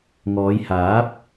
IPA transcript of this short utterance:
ŋ ɔː˨˧ j h aː˨˥ p̚

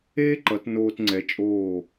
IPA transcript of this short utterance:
eː˥ ǃ ʌ˩˧ t n oː˧ t ŋ͡ǀ ɛ˩˧ t͡ʃʼ oː˧˩

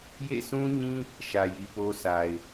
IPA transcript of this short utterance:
j ḛ˦˨ s ũ˦ ɲ ĩ˦ | ʃ ä˨ j i˨ p o˦ sʰ a˨ ɪ̯

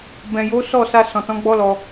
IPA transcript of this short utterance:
b ɛ̃˨ j o˨˦ s ɔ˦˨ s a˧ s ɔ̃˨ t ɔ̃˨˦ ɡ͡b ɔ˦ l ɔ˧

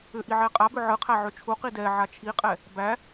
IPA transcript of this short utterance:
ʏ ʔ i ʕ ɛ qʼ a b ʏ ʕ ɯ qʰ æ ʕ ʏ t͡ʃʰ u q i d ɛ ʕ a t͡ʃʰ i qʼ ɛ | b æ

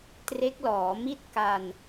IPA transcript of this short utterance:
t r e˦˥ k̚ l ɔː˩˦ m i˥˩ t̚ k a˧ n

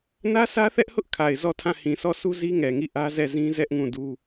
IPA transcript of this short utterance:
n ä˦ s ä˦ θ ɛ˦ ʔ h ʊ˦ ʔ kʰ a˨ ɪ̯ z ɔ˦˨ tʰ ã˦˨ h ĩ˨ sʰ ɔ˦˨ sʰ u˦ z i˦ ŋ ɛ˨ ŋ i˦˨ ʔ ä˦ z ɛ˦˨ z ĩ˦ z ɛ˦ ʔ ŋ ũ˦˨ d u˦

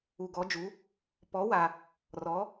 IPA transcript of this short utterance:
u˧ ɡ ɔ˧˥ d͡ʒ u˧˥ | p ɔ˧˥ w a˧ | r ɔ˧˥

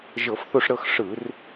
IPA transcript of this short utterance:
ʒ ɤ˧˩˧ f θ o˦˨ ʂ ɾ ɤ˦˨ x ʂ ɯ˧˩˧ r

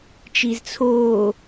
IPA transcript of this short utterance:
t͡ʃ i z t͡sʰ oː

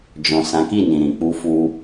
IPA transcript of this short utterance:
d͡ʒ ɔ̃˨ s ã˨˦ k i˦˨ n ĩ˨ ɾ ĩ˨ k͡p u˧ f u˧

